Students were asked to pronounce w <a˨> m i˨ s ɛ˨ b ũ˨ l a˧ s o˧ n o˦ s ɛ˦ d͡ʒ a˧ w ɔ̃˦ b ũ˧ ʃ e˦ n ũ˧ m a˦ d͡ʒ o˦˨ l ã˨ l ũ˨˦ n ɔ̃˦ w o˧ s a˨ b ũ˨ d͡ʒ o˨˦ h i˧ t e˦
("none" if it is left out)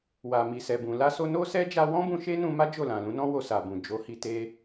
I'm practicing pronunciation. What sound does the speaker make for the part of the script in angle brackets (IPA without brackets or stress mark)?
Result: a˨